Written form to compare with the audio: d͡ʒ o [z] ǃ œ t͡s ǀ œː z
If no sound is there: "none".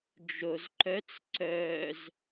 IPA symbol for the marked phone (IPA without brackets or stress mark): z